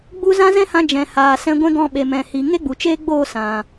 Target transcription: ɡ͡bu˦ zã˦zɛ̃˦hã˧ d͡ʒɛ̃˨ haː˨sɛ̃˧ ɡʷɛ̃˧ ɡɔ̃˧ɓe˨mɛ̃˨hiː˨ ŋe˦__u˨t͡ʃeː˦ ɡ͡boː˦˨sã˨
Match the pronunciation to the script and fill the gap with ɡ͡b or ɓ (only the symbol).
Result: ɡ͡b